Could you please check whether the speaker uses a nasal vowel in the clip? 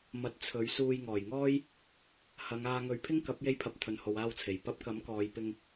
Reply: no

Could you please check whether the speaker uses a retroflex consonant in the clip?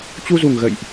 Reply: no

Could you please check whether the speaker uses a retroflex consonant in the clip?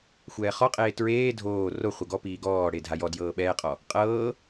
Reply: yes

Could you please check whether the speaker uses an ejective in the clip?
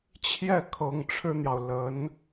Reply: no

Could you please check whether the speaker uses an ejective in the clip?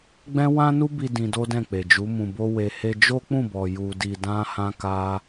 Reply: no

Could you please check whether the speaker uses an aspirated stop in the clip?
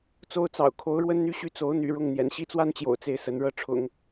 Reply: yes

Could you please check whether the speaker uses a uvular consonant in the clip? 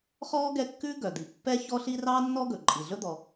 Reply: yes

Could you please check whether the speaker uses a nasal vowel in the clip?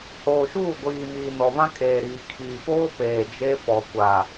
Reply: yes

